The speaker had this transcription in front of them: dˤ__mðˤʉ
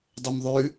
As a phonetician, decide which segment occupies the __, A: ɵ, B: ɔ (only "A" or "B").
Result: A